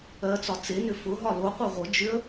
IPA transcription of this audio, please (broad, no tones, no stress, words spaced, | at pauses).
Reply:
ɜt͡sɒ t͡senʏ fʊɦɒ loqʷɛ ʁʷə d͡ʒʏə̯